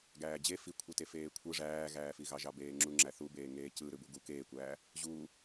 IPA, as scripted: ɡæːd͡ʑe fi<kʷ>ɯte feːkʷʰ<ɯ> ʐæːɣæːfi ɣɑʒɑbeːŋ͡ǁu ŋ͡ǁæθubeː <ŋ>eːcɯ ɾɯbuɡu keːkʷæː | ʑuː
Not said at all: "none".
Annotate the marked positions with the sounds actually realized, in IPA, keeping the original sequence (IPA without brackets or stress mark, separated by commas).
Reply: kʷʰ, ɯ, ŋ